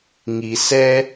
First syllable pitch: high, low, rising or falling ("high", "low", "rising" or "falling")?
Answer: low